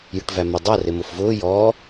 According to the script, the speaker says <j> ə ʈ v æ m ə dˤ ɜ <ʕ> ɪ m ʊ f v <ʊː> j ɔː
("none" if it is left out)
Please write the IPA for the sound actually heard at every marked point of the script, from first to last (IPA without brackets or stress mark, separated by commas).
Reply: j, r, ʊː